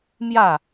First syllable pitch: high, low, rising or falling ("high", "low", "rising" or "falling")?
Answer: falling